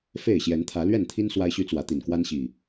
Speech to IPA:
f e˥˨ ɪ̯ ɕ j ɛ˨˦ n t̪ʰ ä˨˦ l ɥ ɛ˥˨ n t̪ʰ i˦ n s w a˦ ɪ̯ ɕ y˦ t͡s w ä˨˦ t̪ i˨˩ n k w a˦ n ɕ i˨˩

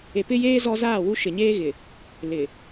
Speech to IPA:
e˨ p ɪ˦ j eː˦ z ɔ˦ z aː˦˨ w u˦ ʃ ɪ˨ ɲ eː˦ ɣ ɪ˨ | l ɪ˨

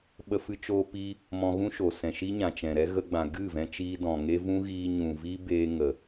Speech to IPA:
ɓ ə˧ f ɨ˧ t͡ʃ oː˧ p iː˦ | m ɔ̃˧ ɣ ũ˦ ʃ o˨ s ɛ̃˨ ʃ i˦ ɲ ã˨ t͡ʃ ɛ̃˨ ɾ ɛ˦ ɣ ə˧ ɡ͡b ã˨ ɡ ɨ˦˨ v ɛ̃˧ t͡ʃ iː˧ d ɔ̃˨ ŋ e˦ v ũ˦ ɣ iː˧ ɲ ũ˨ v iː˦ b eː˧ ŋ ə˨

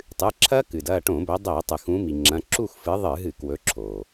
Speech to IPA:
tˤ ɨ˩˧˩ ǁʰ ɐ˦˥ k ɨ˩ d ɐ˦˨ ʈ õ˧˩˧ b ɵ˨˦ dˤ e˧˩˧ tˤ ɨ˩ x ũ˨˦ m i˩ ŋ͡ǁ ɐ̃˩˧˩ ǁ u˦˨ x f ɨ˨˦ ðˤ ɨ˧˩˧ ɦ ɨ˧˩˧ k w ɵ˨˦ ǁʰ o˩

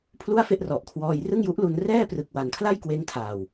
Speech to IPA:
pʰ l u˥˩ a̯ f e˥˩ ʔ r ɔ˨˩ ʔ kʰ w ɔː˧ j r ɯ˥˩ ŋ j u˦˥ ʔ l u˧ n r ɛː˥˩ p r ɯ˨˩ k̚ w a˨˩ n kʰ l a˥˩ j k w eː˧ ŋ tʰ aː˨˩ w

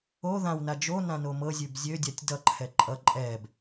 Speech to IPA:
o ð ã w n a d͡ʒ o n ã n o m ɤ zʲ ʉ b zʲ ø dʲ a tʲ d ʌ ǃʰ ɛ ǃʼ ʌ ǃʼ ɛ b

